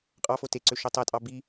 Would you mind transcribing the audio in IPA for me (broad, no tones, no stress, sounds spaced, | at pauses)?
qʼ ɑ f o t e ǀ ø ʃ o tˤ æ tʼ ɑ b i